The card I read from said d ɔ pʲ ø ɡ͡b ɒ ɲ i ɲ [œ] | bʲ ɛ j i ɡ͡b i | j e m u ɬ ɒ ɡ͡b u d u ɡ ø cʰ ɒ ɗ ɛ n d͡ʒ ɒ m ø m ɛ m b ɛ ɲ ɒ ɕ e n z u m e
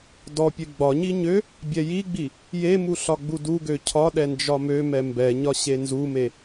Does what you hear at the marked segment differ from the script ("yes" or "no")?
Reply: yes